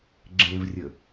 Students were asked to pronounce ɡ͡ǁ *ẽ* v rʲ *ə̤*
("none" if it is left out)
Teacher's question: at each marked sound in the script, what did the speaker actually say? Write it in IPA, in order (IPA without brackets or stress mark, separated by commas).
ẽ, ə